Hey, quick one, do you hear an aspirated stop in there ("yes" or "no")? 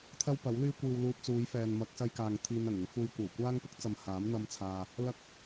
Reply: yes